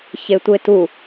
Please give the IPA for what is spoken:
ç e tʷ e t u

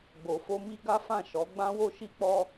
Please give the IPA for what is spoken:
ɡ͡b o˨ f o˧ m i˦ ɡ a˦ f ã˦˨ ʃ ɔ˨˦ ɡ͡b ã˧ w o˧ ʃ i˧ k͡p ɔ˧

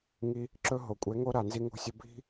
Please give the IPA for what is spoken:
ŋ i˧ | ǁ ɵ˦ ɦ o˨ kʷʼ e˨˦ ŋ o˦ ɾ a˨ n z i˧ ŋ o̤˧ sʲ ɵ˧ bʱ i̤˦

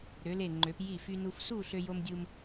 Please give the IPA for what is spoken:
ɾ ø˩˧ l e˧˩ ŋ͡ǃ ø˩˧ p j i˧˩ f y˧ n u˧ f s u˥˧ ɬ ø˧ j o˧ m dʲ u˧ m

